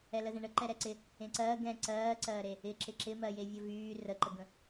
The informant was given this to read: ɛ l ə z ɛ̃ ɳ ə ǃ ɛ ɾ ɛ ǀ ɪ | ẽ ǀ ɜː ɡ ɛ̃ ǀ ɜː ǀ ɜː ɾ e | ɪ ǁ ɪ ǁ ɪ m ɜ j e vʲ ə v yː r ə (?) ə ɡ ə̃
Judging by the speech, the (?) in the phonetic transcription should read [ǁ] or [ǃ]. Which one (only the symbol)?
ǃ